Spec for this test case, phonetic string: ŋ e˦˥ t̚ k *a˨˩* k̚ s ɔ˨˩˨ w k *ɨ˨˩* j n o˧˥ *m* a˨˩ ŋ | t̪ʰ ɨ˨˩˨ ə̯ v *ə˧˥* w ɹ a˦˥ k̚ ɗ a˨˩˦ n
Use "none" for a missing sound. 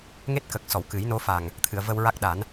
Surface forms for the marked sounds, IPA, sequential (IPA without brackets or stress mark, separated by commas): ə˨˩, ɨ˨˩˦, f, ə˧